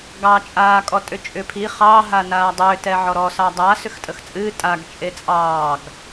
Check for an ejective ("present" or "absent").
present